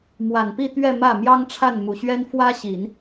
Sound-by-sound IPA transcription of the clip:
mwa˨˩npi˥˧t̪ɥɛ˥˧ mä˥˩ mjɑ˥ŋʈ͡ʂʰa˥˩nmu˨˩ɕɥɛ˥n fwä˥ɕi˨˩˦n

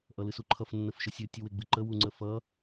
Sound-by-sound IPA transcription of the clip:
ʔʌlɨsuǃʰʌf nːəfʃəsʲɨ tʲuweɡ͡bɨǃə wuŋ͡ǀəfʌ

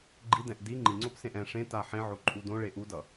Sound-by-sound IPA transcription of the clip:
ɡ͡ǃidɛ̃ʔ di ŋ͡ǃiŋ͡ǀopsẽʔ ɛ̃ ʂẽta ħẽʕoǃʼu dõɭe ʔudʌ

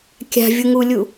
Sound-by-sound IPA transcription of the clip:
kʲa̤vʲuŋulʲu

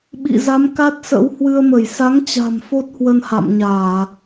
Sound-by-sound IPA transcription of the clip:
ɓḭ˧˨ za˨˦mka˦˥t̚sə̰˧˥w hwɨ˧ə̯mə˧˩j sa˨˦ŋt͡ɕa̤˨˩m fo˦˥t̚hwə˧n ha̰˧˨mɲaː˧˩˨

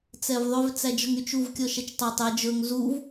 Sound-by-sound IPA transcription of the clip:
t͡sɛvðˤøv t͡sæd͡ʒɔŋyt͡ʃuv kʲɔʃɛt͡ʃtˤɛtˤ ɛ d͡ʒɵŋ zuv

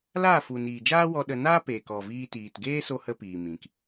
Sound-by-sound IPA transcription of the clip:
laː˦˨fu˨niː˨d͡ʒaː˦ wɔ˧ ɗə˧ naː˦peː˨kɔ˨ viː˧tiː˨t ɡeː˦so˧ hə˦piː˨mĩ˨k

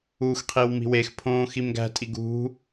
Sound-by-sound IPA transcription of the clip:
uxqʰiw mi̤wexpʰõː ximɡæ̤tʼiɡ ṳ

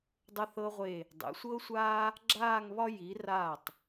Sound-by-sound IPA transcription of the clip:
dˤə˧θɤ˧ʁʷe˧˩ | dˤḛ˩˧sʷɤ˥sʷaː˥ | ɡ͡ǁaː˥˧ŋβɒ˥ ji˩˧ raː˧˩tˤ

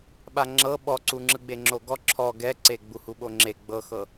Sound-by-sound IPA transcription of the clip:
ɓaŋ͡ǁɤ ɓɔǀuŋ͡ǁɯ ɡ͡beŋ͡ǁoɡɔ ǁʰɔ ɡɛǀe ɡ͡buhuɓoŋ͡ǁe ɡ͡bɤxɤ

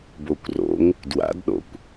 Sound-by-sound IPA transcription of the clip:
bokʷro̰ŋ | dwa̰dɗo̰kʷ

